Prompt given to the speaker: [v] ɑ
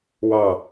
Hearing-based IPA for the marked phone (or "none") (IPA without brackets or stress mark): w